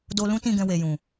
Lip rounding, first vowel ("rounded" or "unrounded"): rounded